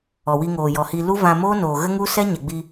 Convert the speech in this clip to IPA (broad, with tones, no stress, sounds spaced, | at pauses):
ɔ˨ w i˧ ŋ oː˨ j ɔ˨ h iː˧ l u˦ v ã˧ m oː˦ n oː˨ ɣ ə˦ ŋ u˦ s ɛ˦ ɲ ɛ˨ ɡ͡b i˧